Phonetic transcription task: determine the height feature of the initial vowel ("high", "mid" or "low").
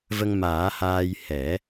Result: mid